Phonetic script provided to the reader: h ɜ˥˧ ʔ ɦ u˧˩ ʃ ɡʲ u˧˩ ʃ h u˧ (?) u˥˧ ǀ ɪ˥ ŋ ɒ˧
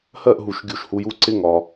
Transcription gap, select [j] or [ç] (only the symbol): j